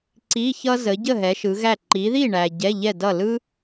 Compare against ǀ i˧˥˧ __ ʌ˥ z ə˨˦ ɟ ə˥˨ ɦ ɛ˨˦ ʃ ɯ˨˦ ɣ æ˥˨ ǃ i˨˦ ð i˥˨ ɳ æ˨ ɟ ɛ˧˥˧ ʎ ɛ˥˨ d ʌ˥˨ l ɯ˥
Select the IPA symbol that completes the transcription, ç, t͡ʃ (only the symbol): ç